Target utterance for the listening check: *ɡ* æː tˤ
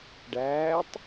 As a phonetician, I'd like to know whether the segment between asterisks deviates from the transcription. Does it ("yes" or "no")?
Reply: yes